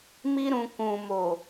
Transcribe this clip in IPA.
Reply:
m i˧ ɾ ũ˨ k ũ˨ m o˨

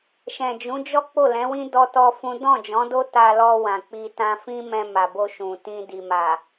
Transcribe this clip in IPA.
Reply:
ʃ ɛ̃˨ d͡ʒ ũ˨˦ d͡ʒ ɔ˦ k͡p o˦˨ l ɛ̃˨˦ w ĩ˦ d ɔ˦ t ɔ˦ f ũ˦ d ɔ̃˦˨ d͡ʒ ɔ̃˨˦ d o˦ t a˧ l ɔ˧ w ã˨ k͡p i˧ t ã˧ f ĩ˦ m ɛ̃˧ m a˨ b o˧ ʃ ũ˨ t ĩ˧ d i˨ m a˨

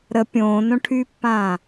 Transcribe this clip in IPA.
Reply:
ɾ ə pʲ õː n õ ʈʰ yː pː ãː

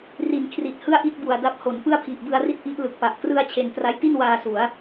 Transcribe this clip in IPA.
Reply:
r i˩˦ n kʰ r i˨˩ t̚ h ɯ˥˩ a̯ ʔ i˥˩ t̚ b u˨˩ a̯ d a˦˥ p̚ h o˩˦ n p ɯ˥˩ a̯ pʰ i˨˩ ʔ b ɯ˧ a̯ r i˥˩ t̚ ʔ i˦˥ ʔ l ɯ˨˩ k̚ p a˨˩ ʔ k r ɯ˥˩ a̯ t͡ɕʰ e˧ n t r a˦˥ j t i˥˩ n w aː˧ s u˩˦ a̯

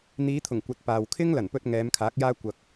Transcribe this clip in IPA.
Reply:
n̪ iː˨˧ t̪ʰ ʊ˨˩ ŋ kʷ ɐ˨ t̚ p aː˨ w kʰ ɪ˥ ŋ l ɐ˨˩ n p ɵ˧ t̚ ŋ ɛː˨˧ m kʰ aː˨˥ k̚ j aː˥ kʷ ɐ˧ k̚

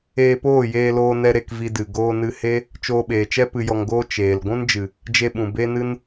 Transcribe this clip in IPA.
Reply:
eː˧ p oː˦˨ j eː˧ l oː˧ n ɛ˧ ɾ e˧ k v i˧ d ɨ˨ ɡ oː˧ n ɨ˧ h e˦ | t͡ʃ oː˧ ɓ eː˨ t͡ʃ ɛ˦ p ɨ˧ j ɔ˧ ŋ ɡ oː˦ t͡ʃ eː˨ l ɡʷ ũ˦ n d͡ʒ ɨ˨ | d͡ʒ e˧ ɓ ũ˨ b e˦ n ɨ˦ n

